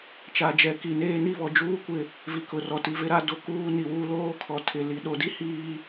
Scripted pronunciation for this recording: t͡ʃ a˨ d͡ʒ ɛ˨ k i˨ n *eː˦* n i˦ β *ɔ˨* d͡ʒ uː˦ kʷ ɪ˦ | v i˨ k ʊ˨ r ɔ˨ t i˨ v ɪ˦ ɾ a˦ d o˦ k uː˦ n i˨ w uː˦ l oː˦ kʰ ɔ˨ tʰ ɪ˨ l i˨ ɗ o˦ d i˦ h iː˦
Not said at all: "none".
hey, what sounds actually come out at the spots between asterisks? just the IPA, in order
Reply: eː˦, ɔ˨

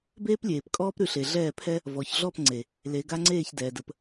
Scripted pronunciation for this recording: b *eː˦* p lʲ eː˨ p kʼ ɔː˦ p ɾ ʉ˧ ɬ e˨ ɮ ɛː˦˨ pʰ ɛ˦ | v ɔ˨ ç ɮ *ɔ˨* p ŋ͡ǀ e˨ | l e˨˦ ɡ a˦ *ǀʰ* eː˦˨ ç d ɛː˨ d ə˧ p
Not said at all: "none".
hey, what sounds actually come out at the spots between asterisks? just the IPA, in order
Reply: eː˦, ɔ˦˨, ŋ͡ǀ

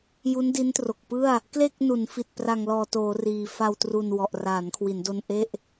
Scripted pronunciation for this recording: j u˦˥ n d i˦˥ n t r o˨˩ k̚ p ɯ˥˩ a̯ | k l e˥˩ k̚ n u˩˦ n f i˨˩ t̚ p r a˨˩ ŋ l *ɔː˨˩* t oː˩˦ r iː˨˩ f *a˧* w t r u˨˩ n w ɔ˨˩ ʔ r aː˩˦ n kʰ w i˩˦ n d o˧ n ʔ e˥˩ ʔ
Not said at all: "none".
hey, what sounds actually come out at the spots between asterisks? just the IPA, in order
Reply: ɔː˨˩, a˧

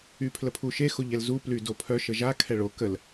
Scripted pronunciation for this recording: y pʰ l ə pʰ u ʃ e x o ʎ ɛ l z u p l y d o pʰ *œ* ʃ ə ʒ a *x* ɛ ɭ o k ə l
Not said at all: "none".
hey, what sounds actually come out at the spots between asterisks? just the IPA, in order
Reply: œ, kʰ

